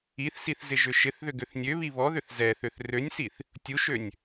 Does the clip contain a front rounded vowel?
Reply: yes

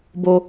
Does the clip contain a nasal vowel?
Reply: no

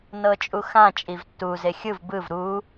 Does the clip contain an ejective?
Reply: yes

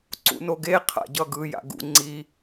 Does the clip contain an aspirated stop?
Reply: yes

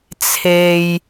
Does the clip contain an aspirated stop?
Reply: yes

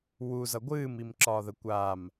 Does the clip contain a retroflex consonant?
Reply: no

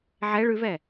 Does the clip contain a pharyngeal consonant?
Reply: yes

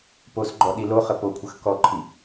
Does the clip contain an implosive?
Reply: yes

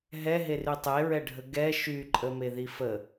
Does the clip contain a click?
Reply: yes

